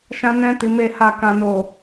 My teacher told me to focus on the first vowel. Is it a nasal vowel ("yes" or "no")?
yes